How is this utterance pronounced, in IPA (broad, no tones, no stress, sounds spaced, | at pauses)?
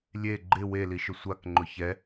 lʲ e ɡ͡ǃ ɪ w e l i ʃ ʊ sʷ a k ŋ͡ǃ ʊ ç ɛ